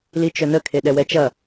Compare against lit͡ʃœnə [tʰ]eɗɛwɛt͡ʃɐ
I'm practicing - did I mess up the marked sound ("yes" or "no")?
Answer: yes